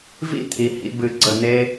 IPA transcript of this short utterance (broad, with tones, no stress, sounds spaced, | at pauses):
v ḭ˥ t̪ʰ i˩˧ h ḭ˧ b ɨ˧˩ ɡ͡ǀ ə˧˩ n̪ e˧